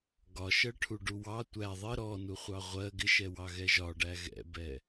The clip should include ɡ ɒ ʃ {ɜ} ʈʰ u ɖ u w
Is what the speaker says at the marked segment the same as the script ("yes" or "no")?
yes